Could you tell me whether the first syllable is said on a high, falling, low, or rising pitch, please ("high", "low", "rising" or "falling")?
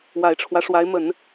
low